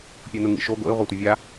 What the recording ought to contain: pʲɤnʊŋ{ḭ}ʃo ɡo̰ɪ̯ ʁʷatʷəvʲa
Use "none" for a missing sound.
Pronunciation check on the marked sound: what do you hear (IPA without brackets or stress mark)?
ḭ